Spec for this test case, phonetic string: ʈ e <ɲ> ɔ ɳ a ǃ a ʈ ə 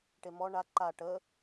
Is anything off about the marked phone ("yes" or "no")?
yes